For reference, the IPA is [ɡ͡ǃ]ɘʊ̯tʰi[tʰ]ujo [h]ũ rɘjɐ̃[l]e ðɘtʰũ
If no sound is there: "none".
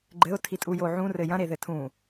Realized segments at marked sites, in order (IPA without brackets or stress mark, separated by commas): ɡ͡ǃ, tʼ, ʕ, ɾ